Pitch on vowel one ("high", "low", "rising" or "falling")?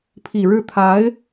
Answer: low